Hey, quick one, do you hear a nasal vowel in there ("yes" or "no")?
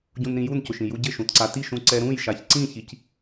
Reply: yes